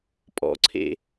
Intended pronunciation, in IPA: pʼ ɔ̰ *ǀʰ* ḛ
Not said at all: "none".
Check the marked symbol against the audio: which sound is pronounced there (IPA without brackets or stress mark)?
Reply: ǀʰ